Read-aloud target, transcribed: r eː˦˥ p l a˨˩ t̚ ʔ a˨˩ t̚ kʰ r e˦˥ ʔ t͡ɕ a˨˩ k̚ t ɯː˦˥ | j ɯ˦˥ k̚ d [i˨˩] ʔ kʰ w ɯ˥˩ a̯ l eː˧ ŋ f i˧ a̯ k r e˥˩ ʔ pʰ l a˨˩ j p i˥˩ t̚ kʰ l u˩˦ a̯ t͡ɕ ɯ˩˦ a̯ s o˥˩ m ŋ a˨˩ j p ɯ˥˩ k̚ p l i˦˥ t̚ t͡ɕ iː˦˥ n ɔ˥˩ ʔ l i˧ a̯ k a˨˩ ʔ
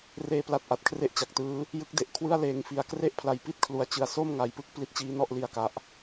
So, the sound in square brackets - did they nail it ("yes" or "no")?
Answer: no